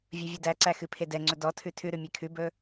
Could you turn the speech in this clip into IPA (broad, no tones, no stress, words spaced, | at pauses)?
vʲɵvʲʉdæǀæ xɨpʰedɛŋ͡ǀɵ dɔ tʰʉtʰʉɾʉ mʲekʰʉbɵ